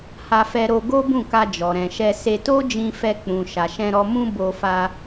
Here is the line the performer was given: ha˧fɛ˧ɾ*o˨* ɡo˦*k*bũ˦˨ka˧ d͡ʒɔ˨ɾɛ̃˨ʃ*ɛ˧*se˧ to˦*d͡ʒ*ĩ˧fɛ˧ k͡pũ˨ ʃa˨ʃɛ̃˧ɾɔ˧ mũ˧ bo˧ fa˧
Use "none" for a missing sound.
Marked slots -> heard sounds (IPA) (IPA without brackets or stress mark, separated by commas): o˧, none, ɛ˧, d͡ʒ